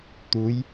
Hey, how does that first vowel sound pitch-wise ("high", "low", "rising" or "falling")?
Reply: rising